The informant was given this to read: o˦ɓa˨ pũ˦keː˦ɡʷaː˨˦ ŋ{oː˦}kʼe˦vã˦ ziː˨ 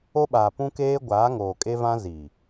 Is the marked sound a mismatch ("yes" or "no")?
yes